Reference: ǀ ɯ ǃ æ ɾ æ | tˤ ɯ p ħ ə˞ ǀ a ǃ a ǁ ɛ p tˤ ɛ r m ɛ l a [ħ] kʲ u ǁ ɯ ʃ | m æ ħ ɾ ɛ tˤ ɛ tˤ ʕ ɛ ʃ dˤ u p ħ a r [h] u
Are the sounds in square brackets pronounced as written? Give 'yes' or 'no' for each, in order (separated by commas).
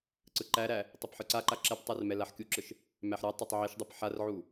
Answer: yes, no